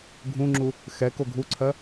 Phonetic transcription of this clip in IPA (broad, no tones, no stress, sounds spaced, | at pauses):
ɡʱ ũ ŋ͡ǁ u | x ɛ k o ɡʱ u ǀʰ ɜ